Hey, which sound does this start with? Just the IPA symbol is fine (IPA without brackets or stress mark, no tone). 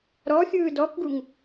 ɾ